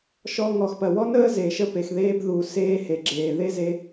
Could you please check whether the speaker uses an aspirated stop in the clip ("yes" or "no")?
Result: no